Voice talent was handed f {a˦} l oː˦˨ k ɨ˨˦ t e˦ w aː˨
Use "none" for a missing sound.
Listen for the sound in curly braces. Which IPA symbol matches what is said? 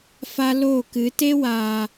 a˦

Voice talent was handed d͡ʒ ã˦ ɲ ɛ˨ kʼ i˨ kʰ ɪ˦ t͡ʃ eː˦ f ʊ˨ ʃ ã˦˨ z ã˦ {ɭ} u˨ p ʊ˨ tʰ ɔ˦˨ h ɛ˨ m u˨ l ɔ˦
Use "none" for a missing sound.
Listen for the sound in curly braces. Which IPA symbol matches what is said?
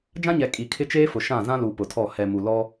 l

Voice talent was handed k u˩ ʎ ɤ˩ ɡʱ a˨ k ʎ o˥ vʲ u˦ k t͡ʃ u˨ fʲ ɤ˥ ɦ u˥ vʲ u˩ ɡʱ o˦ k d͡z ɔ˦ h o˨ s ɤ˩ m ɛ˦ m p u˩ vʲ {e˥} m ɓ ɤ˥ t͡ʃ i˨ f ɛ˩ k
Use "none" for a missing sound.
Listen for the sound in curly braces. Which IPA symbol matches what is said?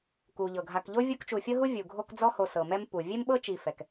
e˥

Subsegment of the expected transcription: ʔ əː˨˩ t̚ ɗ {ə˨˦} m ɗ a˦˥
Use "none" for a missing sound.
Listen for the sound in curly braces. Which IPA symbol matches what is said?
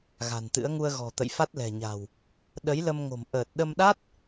ə˧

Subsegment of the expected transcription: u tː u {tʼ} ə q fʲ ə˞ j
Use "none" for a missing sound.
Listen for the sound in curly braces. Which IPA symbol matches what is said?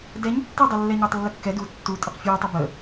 tʼ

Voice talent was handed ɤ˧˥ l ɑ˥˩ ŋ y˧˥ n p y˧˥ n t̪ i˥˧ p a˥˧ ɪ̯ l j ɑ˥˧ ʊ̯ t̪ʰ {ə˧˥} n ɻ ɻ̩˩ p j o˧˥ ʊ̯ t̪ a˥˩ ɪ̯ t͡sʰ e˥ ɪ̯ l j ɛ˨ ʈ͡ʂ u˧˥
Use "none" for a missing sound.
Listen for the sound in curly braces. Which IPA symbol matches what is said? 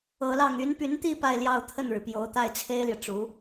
ə˥˩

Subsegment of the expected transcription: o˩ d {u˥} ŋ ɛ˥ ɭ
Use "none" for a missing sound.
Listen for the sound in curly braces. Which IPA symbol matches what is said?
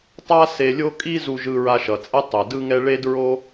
ɯ˥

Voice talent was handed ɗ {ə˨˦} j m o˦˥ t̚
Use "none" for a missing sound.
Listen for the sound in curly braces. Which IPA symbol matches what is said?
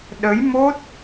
ə˨˦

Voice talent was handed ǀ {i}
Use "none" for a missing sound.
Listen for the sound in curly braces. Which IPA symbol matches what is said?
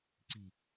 i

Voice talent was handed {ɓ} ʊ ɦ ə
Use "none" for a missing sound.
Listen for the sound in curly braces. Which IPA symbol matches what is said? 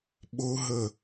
ɓ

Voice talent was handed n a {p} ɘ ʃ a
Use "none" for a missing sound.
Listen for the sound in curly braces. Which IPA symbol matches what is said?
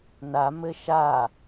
m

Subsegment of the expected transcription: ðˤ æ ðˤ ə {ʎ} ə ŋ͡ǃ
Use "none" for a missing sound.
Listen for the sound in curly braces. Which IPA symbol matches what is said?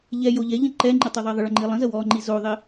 ɭ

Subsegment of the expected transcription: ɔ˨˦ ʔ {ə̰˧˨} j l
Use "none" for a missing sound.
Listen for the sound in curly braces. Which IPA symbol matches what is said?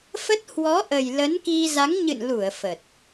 ə˨˩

